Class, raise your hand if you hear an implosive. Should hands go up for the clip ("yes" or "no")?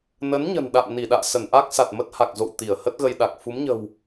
yes